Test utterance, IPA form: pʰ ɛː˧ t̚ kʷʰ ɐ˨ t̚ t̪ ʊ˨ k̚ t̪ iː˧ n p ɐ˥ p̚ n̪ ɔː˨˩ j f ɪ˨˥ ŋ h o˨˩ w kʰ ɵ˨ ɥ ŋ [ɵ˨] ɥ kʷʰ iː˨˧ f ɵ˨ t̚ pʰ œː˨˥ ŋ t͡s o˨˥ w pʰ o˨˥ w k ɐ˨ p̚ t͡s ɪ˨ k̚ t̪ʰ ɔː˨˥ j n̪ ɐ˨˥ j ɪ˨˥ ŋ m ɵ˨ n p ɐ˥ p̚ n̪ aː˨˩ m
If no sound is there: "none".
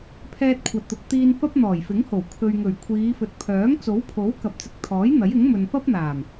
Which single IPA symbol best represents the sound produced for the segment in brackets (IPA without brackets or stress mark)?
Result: ɵ˨˩